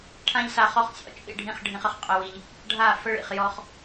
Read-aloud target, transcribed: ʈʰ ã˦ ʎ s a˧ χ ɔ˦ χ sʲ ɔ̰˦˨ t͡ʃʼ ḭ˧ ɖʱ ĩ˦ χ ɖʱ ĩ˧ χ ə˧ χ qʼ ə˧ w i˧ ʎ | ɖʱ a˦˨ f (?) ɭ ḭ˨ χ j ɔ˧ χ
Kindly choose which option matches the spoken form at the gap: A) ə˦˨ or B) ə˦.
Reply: B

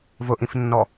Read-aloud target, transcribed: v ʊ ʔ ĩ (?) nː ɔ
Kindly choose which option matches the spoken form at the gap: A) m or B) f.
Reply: B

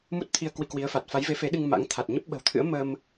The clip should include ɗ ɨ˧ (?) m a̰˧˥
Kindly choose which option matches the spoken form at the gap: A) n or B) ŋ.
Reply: B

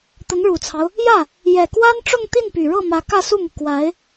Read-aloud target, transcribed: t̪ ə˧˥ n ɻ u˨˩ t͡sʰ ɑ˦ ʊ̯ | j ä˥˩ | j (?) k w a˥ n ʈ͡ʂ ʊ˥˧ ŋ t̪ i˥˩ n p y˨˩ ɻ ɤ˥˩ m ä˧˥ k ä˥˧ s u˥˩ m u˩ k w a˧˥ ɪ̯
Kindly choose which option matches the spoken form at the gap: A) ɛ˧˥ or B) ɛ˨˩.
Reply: B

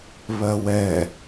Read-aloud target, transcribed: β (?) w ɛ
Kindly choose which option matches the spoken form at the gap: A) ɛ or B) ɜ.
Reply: B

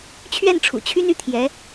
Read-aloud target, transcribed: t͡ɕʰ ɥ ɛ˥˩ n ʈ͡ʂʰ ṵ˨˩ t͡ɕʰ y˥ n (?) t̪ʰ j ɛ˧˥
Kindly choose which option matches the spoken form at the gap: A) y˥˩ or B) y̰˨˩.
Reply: A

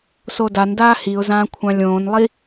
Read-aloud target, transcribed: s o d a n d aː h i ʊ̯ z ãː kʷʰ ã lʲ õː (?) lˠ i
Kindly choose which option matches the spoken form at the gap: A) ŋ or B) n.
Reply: B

